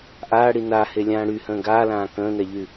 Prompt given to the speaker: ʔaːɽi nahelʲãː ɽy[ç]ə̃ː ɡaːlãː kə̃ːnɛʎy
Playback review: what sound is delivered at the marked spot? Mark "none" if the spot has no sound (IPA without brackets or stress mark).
h